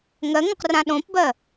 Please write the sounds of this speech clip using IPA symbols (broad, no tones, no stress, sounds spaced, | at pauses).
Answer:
ŋ ɜ ŋ õ q r ã ɗ õ p b ɜ